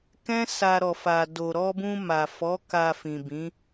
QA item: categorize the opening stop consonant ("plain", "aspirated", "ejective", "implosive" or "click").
plain